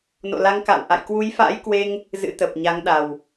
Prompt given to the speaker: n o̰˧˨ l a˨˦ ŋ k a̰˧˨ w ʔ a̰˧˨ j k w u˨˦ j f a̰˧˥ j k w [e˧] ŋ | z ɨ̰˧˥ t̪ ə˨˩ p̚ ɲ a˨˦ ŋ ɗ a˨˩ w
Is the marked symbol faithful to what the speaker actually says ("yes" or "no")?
yes